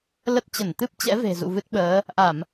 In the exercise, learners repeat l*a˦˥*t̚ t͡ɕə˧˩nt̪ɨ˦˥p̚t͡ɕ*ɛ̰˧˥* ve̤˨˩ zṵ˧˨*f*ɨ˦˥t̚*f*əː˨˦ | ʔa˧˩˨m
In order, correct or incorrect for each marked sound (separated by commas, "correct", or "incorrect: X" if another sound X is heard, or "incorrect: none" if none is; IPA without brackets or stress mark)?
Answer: incorrect: ə˦˥, correct, incorrect: v, incorrect: ɓ